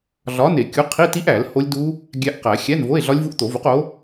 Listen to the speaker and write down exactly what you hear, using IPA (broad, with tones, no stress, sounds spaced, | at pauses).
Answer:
ɮ ɒ˨˥ n e˨˩˦ kʲ u˨˥ qʰ i˧˥˧ t i˦˥ ʔ æ˨˩˦ l h o˦˥ lʲ d u˦˥ | ɡʲ æ˦˥ ʔ q æ˨˩˦ xʲ æ˧˥˧ n v o˧˥˧ e̯ ɮ ɒ˦˥ lʲ v u˦˥ ʔ t̪ o˨˩˦ v u˨˥ q o˨˥